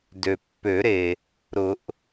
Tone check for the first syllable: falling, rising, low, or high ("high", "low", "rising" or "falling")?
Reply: low